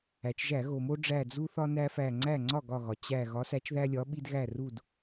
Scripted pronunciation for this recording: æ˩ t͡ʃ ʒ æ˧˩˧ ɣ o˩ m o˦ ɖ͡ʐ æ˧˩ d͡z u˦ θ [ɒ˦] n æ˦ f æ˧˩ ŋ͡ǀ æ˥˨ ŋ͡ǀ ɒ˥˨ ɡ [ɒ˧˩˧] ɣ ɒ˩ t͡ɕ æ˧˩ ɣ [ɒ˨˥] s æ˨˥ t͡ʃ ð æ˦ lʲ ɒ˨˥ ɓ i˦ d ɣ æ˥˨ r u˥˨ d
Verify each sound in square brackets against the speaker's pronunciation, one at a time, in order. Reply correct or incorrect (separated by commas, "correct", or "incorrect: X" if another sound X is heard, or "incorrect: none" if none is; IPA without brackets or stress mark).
correct, incorrect: ɒ˧˩, correct